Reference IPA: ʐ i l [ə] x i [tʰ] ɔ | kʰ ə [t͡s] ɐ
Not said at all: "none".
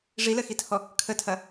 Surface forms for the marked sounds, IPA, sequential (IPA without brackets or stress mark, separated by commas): ə, tʰ, tʰ